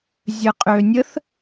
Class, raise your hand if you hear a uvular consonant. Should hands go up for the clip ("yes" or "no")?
yes